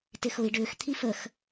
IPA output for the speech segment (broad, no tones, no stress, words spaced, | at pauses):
tɪxʊi̯ ɖʏːx t̪ʰifəx